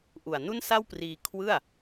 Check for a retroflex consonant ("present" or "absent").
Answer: absent